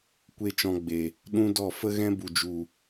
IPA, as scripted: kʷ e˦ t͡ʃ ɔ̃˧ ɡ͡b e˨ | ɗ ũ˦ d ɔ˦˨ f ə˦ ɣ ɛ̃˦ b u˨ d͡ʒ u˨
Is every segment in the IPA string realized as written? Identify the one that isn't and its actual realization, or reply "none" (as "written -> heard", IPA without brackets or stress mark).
none